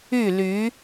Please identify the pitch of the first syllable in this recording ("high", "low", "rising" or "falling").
falling